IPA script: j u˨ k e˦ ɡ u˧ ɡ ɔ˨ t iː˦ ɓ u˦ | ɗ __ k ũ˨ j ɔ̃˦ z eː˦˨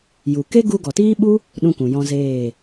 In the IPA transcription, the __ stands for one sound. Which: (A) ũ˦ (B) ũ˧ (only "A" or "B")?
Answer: A